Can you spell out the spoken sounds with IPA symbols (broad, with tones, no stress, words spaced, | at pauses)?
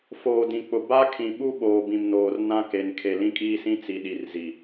foː˨dĩ˨k͡pʊ˨ ba˦kʰĩ˨ɓu˦ ɓoː˨bĩ˨mnoː˨r nã˦ke˨n kʰe˨lĩ˦kʼiː˦sĩ˦ t͡si˨ɗi˨r zi˨